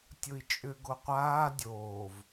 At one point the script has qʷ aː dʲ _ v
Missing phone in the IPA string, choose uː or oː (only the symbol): oː